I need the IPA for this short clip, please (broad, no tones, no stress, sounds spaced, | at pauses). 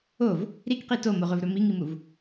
o v | ɾ i k q i t o m o ʁ ɵ v ɾ ɵ m i ŋ i m u v